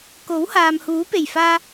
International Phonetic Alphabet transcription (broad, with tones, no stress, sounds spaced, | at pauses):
k o˨˥ w h aː˨ m h uː˨˥ p e˨˩ j f aː˧